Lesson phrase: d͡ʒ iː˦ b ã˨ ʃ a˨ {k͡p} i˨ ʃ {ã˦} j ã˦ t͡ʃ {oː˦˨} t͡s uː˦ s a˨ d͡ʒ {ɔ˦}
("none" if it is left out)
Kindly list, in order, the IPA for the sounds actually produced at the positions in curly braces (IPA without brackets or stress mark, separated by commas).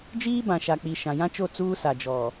k͡p, ã˨, o˦˨, ɔ˨